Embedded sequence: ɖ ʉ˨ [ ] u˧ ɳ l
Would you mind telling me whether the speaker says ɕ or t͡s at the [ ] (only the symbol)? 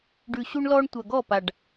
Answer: ɕ